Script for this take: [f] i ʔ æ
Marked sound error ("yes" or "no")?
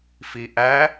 no